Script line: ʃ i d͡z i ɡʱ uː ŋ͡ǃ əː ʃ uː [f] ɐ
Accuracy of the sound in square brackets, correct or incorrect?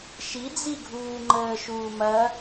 incorrect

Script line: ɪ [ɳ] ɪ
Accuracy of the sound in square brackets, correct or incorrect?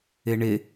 correct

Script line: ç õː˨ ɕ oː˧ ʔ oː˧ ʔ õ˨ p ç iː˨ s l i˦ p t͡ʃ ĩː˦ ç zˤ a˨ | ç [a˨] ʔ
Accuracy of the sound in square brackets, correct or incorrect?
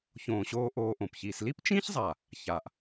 correct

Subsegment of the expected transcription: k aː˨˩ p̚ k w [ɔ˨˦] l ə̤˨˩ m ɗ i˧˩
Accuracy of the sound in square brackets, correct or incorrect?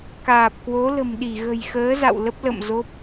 incorrect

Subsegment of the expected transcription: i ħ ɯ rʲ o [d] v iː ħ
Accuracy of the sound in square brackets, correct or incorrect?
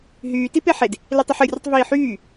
incorrect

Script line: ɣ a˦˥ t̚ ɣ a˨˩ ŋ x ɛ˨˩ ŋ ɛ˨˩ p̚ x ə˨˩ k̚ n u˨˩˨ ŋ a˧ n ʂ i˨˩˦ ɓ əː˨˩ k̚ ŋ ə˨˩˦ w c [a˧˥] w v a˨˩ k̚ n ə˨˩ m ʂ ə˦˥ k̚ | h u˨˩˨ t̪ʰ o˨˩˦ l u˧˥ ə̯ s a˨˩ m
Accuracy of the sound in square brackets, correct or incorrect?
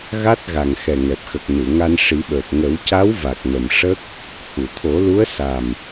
correct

